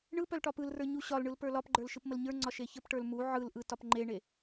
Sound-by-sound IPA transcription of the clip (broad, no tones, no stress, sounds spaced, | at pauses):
ɳ ɯ p œ l ʈ ɒ p ɯ l r ə˞ ɲ u ɕ ɒ l ɳ ɯ l p ə˞ l ɒ p ɡ͡ǃ ə˞ l ʃ ɯ p m ə l ɲ ə˞ ŋ͡ǀ ɒ ʃ e ç ə p ʈ ə˞ l m u ʕ ɯ l ʔ ɯ t ɒ p ŋ͡ǃ e ɳ e